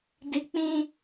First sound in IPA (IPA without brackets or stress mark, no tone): d